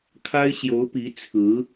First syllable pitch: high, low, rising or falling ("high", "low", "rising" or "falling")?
high